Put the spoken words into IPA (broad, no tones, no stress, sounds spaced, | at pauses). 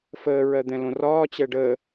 f əː ɹ ɜ d̪ ɛ̃ l õ r ɒː t͡ɕ ɛ ɖ əː